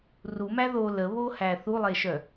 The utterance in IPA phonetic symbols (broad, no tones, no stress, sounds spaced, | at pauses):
r u m æ ð o l ə β o h æ θ u lˠ e ʃ œ